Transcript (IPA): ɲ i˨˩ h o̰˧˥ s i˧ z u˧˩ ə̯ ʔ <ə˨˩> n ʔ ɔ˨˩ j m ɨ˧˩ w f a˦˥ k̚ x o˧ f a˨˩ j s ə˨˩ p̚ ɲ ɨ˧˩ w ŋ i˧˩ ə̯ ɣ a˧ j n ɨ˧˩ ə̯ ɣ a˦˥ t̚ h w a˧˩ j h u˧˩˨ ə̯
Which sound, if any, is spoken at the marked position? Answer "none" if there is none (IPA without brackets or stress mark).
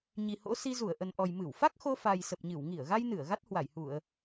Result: ə˨˩